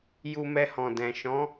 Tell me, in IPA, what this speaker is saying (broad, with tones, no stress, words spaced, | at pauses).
ju˧mɛ˧hɔ̃˨dɛ̃˨ ʃɔ̃˨˦